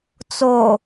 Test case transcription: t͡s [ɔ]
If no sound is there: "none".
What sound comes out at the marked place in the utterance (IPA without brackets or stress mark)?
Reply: o